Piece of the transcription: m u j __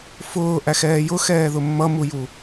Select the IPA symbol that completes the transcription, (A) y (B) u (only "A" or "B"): B